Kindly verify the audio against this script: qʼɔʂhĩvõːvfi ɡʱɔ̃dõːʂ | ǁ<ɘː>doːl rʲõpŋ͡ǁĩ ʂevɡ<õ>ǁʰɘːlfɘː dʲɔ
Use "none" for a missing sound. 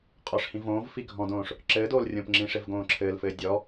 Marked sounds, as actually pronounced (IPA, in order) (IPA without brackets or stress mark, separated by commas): ɘː, õː